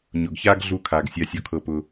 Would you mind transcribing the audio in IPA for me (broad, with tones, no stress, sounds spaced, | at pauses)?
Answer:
ɲ ʊ˨ ɡ ç a˦ ɡ ɮ u˧ kʰ a˨ ɡ sʲ a˦ sʲ ɔ˦ kʰ ɤ˦ p ʊ˦